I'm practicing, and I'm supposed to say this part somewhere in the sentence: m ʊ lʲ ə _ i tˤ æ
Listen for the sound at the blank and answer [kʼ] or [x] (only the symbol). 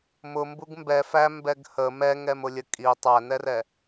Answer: kʼ